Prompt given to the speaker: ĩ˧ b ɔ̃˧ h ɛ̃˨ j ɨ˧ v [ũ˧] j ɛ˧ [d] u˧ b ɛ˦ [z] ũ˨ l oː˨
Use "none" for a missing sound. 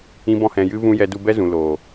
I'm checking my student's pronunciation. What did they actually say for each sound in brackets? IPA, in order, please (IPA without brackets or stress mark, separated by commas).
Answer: ũ˧, d, z